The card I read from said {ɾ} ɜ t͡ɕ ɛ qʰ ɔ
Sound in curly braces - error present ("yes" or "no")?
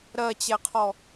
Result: no